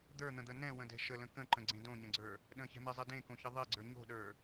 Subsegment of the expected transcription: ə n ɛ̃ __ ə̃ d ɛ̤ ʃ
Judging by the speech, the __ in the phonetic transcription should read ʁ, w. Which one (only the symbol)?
w